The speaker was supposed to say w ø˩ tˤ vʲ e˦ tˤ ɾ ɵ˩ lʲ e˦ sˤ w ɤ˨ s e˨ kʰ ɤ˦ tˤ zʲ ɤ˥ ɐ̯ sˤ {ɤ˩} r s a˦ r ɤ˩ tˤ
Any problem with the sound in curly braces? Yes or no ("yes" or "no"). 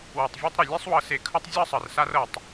no